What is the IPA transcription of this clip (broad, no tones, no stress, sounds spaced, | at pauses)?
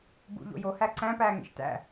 b ṵ ʎ o̰ j o h æ ǀ æ̃ p æː ŋ ḛ ʃ t æ̰